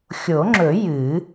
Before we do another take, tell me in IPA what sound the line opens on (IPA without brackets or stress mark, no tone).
xʲ